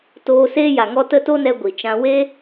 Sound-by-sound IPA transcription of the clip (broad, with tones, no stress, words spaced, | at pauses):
toː˧seː˦ja˨ŋɔ˦ tə˦to˦nɛ˧ ɡʷi˨t͡ʃã˧ weː˦